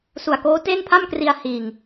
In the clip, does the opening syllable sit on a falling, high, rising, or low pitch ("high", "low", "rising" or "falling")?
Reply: low